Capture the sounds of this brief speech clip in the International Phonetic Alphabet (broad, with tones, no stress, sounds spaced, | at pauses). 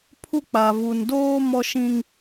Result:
pʰ u˦ k͡p a˨ v u˨ n d oː˦ m ɔ˦ ʃ ĩ˦ ŋ